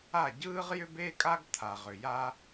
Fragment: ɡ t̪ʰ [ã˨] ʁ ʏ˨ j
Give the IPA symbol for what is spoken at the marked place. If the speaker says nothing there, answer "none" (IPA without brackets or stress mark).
a˨